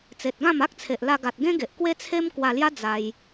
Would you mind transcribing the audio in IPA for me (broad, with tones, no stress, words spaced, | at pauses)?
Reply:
t͡se˨t̚ɡã˥˧m a˦k̚t͡sʰe˨ʔla˧ ɡa˨t̚ɡẽ˦ɡe˨ʔ kwe˦t͡sʰe˦mkwa˧lja˦ d͡za˧j